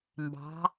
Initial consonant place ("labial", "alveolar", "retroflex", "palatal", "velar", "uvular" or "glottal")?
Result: labial